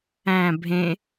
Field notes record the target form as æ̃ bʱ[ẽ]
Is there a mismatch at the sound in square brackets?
no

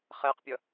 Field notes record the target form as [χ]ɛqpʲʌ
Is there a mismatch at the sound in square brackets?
no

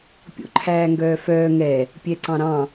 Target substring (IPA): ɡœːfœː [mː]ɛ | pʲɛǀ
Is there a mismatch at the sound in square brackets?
yes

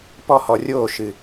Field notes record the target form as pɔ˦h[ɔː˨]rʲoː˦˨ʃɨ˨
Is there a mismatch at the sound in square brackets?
yes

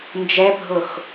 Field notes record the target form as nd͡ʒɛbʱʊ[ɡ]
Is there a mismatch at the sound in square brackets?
yes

